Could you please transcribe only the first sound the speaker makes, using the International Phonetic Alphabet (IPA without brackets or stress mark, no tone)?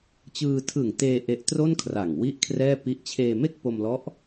t͡ɕ